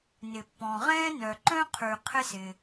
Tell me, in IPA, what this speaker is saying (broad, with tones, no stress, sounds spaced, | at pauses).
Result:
n ɪ˩ pː ɔ̃˩ ʁ ɛ̃ː˥ n œ˩ ǃ œ̃˥ qʰ ʉ˩ qʰ ɪ˥ s ɪː˩